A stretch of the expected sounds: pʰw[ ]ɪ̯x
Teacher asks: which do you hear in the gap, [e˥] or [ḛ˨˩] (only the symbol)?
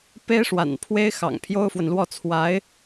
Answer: e˥